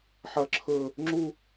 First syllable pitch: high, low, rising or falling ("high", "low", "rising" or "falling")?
high